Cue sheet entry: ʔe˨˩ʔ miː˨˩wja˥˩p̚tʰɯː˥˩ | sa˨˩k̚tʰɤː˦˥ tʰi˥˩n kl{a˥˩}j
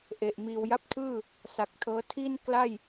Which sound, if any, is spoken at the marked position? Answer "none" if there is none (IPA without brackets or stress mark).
a˥˩